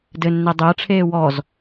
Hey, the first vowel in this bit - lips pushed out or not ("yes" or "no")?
no